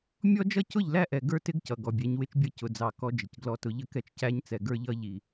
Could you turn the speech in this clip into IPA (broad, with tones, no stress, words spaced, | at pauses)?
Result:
mʲɔ˦d͡ʒʌ˦cʊ˦˨ʎlæ˦ ʔɛ˨ɡə˞˦tɪ˦ɡ cʌ˨ɡɔ˨bʲɛ˨˦ɲwɪ˦t͡ʃ bʲʌ˦cʊ˨d͡zɑ˨ kɔ˦d͡ʒɪ˨cɡlɔ˦tʊ˦ ʎə˦kɛ˦t͡ʃcæ˦ɲt͡sɛ˨ ɡə˞˦ʎʌ˦ ʎi˨